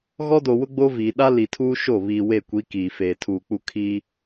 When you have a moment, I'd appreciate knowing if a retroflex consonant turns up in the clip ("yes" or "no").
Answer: no